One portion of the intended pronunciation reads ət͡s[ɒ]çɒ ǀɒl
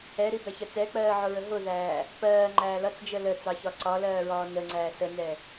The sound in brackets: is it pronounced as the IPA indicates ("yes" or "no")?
no